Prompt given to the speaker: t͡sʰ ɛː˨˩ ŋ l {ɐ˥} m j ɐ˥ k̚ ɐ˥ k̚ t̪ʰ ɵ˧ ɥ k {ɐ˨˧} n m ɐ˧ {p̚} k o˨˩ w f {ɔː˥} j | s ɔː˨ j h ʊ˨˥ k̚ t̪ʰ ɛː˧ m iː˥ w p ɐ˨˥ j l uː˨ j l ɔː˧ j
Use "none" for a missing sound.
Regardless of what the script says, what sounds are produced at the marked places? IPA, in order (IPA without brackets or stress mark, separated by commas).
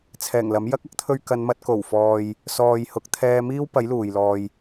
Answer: ɐ˨˥, ɐ˨˧, t̚, ɔː˧